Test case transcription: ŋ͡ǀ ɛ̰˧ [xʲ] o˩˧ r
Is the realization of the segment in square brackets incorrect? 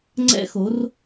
yes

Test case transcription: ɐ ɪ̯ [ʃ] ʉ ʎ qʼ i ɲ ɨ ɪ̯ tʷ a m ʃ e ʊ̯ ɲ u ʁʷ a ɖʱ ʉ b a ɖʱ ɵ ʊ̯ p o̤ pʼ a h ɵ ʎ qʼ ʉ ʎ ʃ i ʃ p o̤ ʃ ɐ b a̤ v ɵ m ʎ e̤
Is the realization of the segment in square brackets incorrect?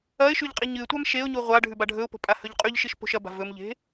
no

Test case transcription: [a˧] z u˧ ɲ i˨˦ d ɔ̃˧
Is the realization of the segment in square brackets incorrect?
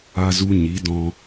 no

